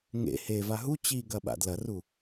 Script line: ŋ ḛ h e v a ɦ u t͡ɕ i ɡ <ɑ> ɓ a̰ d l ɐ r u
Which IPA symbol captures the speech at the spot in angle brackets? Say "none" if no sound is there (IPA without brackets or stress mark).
ɐ